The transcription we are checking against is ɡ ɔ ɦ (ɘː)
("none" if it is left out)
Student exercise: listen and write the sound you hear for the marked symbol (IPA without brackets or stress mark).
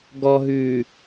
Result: ʉː